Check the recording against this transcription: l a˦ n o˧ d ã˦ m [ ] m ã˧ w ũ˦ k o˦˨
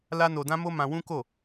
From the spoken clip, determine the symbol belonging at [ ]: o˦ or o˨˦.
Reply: o˦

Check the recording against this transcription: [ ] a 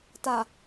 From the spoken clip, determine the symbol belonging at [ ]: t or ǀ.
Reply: t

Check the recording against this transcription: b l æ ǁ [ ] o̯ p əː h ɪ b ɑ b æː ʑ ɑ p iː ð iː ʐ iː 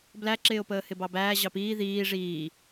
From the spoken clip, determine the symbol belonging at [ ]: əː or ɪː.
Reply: ɪː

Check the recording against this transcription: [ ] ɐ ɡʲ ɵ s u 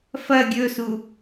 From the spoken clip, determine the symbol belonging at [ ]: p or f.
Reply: f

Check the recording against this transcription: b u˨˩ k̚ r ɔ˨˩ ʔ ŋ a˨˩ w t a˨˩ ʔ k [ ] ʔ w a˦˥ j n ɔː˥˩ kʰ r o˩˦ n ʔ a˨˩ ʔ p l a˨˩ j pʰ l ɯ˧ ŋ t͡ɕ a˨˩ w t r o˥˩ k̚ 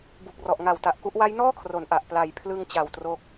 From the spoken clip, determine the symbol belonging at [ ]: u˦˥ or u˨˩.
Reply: u˦˥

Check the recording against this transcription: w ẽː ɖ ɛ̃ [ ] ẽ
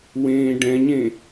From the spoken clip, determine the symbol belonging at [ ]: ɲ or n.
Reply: ɲ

